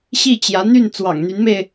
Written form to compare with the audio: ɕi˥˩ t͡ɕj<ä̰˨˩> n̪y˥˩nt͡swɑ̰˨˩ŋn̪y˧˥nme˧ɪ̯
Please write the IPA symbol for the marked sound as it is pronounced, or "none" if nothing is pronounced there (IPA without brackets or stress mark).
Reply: ä˧˥